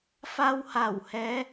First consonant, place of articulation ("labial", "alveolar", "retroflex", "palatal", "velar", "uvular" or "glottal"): labial